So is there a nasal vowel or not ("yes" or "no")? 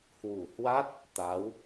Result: no